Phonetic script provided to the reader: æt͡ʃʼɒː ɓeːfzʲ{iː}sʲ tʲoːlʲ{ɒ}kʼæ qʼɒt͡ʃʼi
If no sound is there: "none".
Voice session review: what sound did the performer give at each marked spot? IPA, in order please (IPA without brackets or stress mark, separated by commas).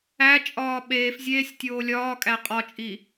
eː, ɒː